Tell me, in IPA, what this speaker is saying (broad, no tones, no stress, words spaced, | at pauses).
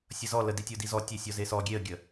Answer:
sʲʌzɔ ləd itʲodizɔ tʲesʲɔzesɔ ɡʲeə̯ɡʲə